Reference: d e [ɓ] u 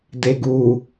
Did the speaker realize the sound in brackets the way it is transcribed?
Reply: no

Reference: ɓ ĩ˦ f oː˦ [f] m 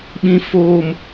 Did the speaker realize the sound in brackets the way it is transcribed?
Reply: no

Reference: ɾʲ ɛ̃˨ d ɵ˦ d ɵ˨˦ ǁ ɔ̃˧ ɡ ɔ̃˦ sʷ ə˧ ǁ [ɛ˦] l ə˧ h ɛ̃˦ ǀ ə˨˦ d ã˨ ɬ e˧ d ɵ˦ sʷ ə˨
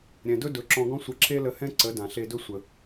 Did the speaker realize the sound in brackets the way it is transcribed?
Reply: no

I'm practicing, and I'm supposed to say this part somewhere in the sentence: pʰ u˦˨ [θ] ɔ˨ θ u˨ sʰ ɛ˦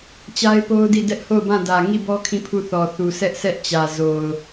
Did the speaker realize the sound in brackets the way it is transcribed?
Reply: yes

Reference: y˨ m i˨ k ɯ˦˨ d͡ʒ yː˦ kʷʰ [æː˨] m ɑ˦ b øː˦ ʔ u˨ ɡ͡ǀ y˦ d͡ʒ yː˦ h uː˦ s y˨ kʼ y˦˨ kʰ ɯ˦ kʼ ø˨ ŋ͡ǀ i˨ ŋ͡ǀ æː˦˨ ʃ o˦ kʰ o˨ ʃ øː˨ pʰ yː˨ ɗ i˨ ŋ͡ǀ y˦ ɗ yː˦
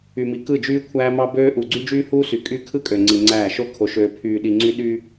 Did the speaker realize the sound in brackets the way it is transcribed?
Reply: no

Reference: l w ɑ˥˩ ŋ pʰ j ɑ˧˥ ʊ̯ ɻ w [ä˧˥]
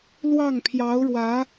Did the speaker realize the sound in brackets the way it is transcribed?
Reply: yes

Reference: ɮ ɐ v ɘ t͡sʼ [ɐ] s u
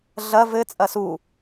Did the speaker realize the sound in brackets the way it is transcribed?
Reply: yes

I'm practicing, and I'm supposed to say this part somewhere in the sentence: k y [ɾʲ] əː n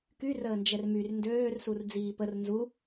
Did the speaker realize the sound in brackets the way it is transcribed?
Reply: no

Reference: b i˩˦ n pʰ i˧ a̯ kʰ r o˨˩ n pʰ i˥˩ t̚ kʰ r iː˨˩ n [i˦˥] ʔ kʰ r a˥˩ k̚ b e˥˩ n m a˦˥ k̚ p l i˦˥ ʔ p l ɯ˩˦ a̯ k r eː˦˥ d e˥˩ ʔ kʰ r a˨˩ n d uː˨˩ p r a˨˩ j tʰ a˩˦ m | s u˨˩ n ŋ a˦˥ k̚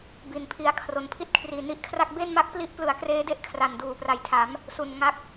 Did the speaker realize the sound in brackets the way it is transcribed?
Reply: yes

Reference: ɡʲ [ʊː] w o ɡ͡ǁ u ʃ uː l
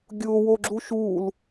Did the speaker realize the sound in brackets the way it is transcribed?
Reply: yes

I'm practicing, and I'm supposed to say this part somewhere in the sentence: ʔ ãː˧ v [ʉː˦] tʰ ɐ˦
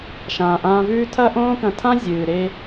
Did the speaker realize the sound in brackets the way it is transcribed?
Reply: yes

